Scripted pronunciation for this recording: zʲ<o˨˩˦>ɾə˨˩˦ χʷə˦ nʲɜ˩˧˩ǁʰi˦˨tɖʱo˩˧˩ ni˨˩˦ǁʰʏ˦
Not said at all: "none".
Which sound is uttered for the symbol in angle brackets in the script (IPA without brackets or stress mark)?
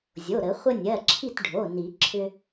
o˩˧˩